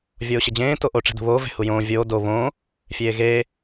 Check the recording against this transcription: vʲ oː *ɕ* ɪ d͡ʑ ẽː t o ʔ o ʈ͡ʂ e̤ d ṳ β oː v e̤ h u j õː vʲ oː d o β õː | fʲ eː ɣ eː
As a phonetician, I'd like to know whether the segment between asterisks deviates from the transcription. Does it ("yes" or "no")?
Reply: no